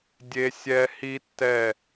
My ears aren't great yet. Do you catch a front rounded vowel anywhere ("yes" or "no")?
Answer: no